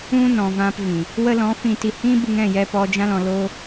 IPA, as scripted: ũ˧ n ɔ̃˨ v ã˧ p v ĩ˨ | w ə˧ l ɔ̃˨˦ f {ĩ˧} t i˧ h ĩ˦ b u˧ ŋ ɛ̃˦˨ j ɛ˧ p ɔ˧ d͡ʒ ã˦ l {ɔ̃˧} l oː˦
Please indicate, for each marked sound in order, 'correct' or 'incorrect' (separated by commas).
correct, correct